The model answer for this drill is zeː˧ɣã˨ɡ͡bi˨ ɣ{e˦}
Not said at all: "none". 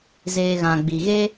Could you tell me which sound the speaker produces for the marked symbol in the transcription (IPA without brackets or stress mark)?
e˦